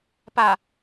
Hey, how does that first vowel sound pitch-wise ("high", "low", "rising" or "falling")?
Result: low